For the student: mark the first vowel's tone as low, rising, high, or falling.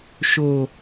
low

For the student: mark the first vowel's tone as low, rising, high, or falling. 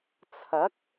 rising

